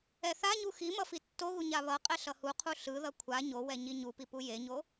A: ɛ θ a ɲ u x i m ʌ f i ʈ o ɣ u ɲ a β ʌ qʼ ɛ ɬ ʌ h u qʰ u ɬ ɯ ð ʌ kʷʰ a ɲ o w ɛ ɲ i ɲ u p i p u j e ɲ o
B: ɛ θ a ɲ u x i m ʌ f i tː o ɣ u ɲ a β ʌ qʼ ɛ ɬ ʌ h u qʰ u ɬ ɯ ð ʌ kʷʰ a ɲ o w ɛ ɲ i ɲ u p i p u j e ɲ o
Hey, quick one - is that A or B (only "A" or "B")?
B